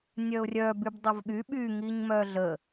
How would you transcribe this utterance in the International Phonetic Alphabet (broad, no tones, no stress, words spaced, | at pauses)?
nʲœʊ̯rʲœ bybdˤəvɠy ɓy ŋiɲmœɮə